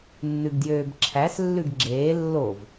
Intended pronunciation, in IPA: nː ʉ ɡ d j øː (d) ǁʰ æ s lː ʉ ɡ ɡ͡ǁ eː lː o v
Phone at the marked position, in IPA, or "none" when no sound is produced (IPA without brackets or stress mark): b